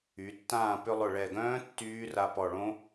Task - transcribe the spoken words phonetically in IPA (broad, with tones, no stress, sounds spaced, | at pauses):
y˩˧ tː ãː˥˨ p ʏ˧ lˠ ʊ˨˩ ɭ ɛ˨˩ ɡ œ̃ː˦˥ tː yː˦˥ r a˧ p ɔ˨˩ ɭ õ˦˥